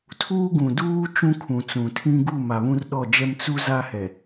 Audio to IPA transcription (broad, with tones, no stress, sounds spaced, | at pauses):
tʰ uː˦ ɡ ũ˨ d uː˦ t͡ʃ ũ˦ kʰ ũ˨ t͡s ũ˨ tʰ ĩ˦ ɡ u˦˨ m a˨ β ũ˦ r ɗ ɔ˦˨ d͡ʒ ɛ˦ m t͡s u˦ z a˦ h ɛ˨